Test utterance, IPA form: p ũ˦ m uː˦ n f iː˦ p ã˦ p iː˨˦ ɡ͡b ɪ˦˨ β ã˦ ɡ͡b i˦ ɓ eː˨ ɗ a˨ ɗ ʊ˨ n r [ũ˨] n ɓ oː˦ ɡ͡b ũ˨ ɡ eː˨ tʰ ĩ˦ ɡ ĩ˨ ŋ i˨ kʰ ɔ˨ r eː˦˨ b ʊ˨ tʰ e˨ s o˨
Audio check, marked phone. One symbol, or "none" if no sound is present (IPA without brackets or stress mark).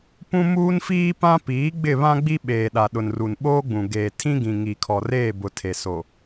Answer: u˨